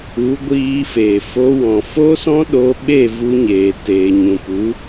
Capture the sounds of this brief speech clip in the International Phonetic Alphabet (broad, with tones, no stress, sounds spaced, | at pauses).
u˨˦ ɡʷ iː˧ f e˨ f o˧ w ɔ̃˨ f o˦ s ɔ̃˦ ɗ o˧ ɓ e˦˨ v u˧ ɲ eː˨ t eː˨ ɲ ũ˨ p u˨˦